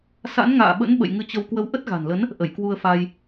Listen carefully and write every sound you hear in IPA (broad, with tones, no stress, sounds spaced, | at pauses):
s a̰˧˥ n ŋ a̰ː˧˨ ɓ ə̰˧˥ n ɓ ə̰˧˨ j ŋ ɨ˧ t͡ɕ ə˧ w k w ə˨˦ w ʔ ə˦˥ t̚ ɣ a̤˨˩ n l ə˨˦ n | ʔ ə˧˩ j k w u˧ ə̯ f a˧ j